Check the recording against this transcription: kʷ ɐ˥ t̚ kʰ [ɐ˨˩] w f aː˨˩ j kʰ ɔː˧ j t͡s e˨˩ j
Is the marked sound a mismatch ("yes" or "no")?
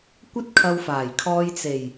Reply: yes